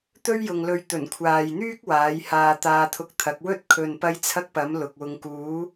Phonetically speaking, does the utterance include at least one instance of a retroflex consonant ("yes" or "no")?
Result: no